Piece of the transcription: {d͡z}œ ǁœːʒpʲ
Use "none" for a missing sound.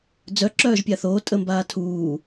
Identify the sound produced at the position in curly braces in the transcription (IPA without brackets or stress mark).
d͡z